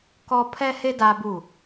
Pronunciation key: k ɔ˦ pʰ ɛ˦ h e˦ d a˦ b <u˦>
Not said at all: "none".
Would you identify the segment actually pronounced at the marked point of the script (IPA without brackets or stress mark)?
u˦˨